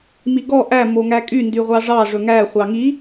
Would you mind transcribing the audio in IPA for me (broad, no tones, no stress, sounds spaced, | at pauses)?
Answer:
m i ɡ ɔ ʔ æ m o ŋ æ kʼ y n d y ʁʷ ɑ ʐ ɑ ʐ ɵ ŋ æ χʷ ɑ ŋ i